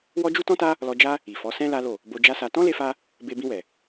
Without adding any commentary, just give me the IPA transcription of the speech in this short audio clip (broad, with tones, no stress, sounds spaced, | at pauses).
w ɔ˦ d͡ʒ u˦ t ɔ̃˦ t a˦ | l ɔ˧ d͡ʒ a˦ | i˨ f ɔ˨˦ s ɛ̃˦ l a˦ l o˦˨ | b o˧ d͡ʒ a˦ s a˧ t ɔ̃˦ l e˧ f a˧ | b e˧ b ĩ˧ w ɛ˨